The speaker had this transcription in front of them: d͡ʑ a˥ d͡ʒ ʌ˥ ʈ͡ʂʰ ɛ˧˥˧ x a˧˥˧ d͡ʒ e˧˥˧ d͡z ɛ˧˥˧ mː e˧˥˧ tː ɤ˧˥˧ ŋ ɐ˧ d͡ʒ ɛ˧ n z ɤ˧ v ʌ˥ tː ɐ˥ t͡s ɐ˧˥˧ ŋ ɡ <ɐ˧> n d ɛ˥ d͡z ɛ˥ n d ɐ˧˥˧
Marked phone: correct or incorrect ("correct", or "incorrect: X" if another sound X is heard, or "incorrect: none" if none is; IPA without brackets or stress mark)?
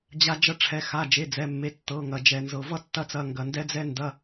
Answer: correct